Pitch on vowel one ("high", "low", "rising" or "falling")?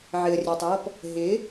low